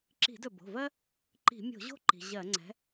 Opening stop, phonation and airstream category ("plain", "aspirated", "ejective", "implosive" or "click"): click